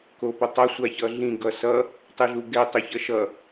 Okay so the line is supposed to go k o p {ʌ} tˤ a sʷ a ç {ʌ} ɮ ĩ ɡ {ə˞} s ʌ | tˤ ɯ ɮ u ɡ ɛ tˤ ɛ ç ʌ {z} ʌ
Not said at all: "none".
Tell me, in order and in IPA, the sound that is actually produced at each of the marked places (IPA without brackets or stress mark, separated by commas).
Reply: ʌ, ʌ, ʌ, ʃ